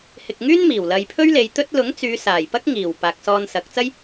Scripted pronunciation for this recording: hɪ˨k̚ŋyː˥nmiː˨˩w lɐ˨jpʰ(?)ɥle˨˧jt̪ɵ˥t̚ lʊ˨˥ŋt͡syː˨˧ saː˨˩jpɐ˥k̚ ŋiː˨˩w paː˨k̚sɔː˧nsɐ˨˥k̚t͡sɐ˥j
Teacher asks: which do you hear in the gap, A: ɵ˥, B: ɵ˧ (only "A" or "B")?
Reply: A